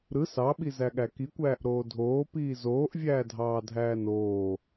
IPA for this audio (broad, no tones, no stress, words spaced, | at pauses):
ɾɯ sɑɓizæɠæ kikʷæːʔɾoː dʱoːpiː zoːʔvʲæːdʱɑːdʱæː noː